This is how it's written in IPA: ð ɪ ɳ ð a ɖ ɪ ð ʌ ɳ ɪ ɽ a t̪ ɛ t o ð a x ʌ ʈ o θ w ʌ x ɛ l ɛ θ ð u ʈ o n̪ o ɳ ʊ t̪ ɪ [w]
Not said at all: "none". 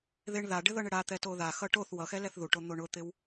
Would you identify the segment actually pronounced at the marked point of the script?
w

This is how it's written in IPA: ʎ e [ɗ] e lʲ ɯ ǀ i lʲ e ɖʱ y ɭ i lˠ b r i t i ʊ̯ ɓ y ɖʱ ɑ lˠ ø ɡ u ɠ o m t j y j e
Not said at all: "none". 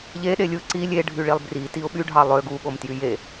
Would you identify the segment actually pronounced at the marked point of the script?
ɗ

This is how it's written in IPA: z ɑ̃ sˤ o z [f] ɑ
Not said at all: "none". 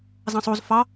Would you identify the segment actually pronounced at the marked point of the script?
f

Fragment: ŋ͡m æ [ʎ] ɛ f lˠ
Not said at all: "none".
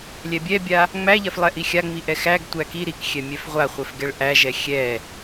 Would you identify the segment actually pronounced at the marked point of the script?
ʎ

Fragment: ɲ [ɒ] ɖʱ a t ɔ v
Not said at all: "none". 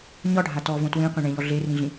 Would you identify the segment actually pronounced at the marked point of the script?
ɒ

